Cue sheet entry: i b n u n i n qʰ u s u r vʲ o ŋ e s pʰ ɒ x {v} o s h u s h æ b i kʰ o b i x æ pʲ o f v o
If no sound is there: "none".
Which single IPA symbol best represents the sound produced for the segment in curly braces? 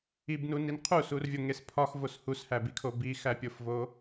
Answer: v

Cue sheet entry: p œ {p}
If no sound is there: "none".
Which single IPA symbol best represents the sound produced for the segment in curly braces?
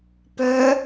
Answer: none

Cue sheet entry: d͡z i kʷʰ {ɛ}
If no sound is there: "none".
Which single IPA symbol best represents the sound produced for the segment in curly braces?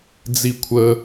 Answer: ə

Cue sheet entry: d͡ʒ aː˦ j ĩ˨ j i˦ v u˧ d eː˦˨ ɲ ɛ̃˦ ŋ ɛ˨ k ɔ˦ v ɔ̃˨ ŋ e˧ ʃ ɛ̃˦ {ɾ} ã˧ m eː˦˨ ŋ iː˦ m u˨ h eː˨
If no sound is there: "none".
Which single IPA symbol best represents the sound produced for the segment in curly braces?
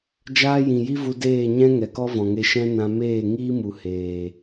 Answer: n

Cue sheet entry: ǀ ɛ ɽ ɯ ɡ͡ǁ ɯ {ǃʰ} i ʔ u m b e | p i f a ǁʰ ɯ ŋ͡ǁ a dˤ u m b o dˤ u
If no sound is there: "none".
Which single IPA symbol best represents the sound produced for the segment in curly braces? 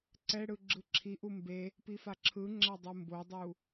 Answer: ǁʰ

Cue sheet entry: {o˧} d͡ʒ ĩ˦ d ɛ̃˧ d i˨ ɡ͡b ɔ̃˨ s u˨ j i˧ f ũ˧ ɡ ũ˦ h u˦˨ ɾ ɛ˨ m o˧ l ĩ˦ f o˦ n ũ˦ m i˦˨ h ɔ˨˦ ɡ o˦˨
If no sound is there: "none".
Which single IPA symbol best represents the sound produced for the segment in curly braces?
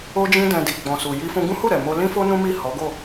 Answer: o˦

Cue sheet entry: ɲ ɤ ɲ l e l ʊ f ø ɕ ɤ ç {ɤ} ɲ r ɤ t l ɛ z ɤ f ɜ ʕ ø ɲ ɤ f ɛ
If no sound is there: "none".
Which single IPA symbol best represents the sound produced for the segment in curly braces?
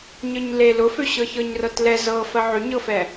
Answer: ɤ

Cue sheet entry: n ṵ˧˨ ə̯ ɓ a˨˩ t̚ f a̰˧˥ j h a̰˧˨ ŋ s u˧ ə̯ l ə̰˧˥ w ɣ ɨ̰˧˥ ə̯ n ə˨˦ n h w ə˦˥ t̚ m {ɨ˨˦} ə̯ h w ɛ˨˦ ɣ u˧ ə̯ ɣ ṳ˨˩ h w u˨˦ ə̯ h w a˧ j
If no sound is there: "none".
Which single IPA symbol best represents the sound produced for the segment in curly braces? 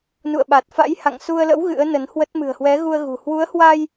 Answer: ɨ̤˨˩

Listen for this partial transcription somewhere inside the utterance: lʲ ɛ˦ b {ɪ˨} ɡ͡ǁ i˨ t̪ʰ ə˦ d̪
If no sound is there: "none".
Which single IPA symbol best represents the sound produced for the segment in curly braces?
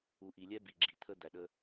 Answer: i˨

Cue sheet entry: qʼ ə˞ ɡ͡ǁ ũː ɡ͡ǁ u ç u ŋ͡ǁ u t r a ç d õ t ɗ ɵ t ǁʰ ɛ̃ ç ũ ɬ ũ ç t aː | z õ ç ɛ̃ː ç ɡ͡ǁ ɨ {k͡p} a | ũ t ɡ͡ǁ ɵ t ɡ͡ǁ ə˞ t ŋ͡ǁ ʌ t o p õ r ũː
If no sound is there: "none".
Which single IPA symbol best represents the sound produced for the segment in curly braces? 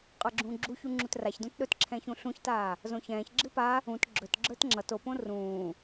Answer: p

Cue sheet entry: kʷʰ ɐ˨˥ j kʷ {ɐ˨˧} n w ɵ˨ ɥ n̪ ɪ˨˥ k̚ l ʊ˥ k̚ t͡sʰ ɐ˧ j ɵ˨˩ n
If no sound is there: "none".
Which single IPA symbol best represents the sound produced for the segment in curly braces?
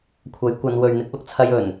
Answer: ɐ˨˧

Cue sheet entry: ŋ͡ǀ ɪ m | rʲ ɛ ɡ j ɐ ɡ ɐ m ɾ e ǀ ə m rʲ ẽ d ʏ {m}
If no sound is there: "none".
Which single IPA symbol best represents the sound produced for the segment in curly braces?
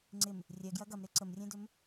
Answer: m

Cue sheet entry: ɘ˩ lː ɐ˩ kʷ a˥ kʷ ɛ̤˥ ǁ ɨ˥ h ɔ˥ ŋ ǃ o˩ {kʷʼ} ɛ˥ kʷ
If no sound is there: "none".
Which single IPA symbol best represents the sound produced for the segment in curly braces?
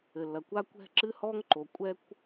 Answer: kʷʼ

